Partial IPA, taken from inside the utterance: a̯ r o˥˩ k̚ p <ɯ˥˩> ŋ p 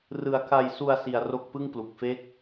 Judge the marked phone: correct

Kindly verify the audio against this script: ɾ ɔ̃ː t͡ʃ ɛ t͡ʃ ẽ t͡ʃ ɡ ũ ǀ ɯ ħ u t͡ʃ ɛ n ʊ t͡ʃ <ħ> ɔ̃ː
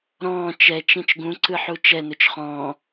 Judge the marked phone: incorrect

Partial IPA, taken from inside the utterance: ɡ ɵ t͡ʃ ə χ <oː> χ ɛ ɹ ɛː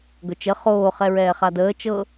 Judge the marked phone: correct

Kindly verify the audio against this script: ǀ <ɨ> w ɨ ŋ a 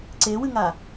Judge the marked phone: incorrect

